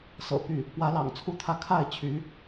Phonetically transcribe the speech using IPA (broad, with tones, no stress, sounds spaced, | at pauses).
s ɤ̰˨˩ p y˥˩ | p w ä˧˥ l ɑ̰˨˩ ŋ t͡sʰ u˥ t̪ʰ ä˥˧ kʰ a˥˩ ɪ̯ t͡ɕʰ y˧˥